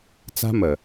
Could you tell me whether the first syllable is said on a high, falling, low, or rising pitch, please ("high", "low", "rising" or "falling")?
high